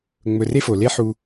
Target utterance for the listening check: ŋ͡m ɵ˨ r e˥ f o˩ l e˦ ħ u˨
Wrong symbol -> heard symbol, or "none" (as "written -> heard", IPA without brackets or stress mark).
none